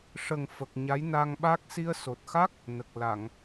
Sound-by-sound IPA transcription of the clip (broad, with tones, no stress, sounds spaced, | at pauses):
ʂ ə˨˩ ŋ f ə˨˩ k̚ ɲ a˧˥ j n a˧ ŋ ɓ a˦˥ k̚ s i˧ ə̯ s o˨˩ t̚ x a˦˥ k̚ | n ə˨˩ k̚ l a˨˩˨ ŋ